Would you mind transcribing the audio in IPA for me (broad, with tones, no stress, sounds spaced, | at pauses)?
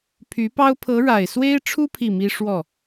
pʰ y˧˥ p ɑ˥ ʊ̯ pʰ ɤ˧˥ ɻ a˨˩ ɪ̯ s w e˥ ɪ̯ ʈ͡ʂʰ u˥ pʰ i˥˩ m i˥ ʂ w ɔ˥˩